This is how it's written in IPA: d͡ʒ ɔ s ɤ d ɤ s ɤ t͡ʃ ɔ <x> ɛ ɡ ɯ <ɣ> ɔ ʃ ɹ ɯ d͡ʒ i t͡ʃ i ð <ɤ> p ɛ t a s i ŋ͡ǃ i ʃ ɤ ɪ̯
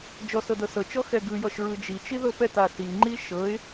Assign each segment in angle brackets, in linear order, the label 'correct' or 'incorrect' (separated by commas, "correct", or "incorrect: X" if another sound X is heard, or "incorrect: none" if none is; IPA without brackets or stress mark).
correct, incorrect: j, correct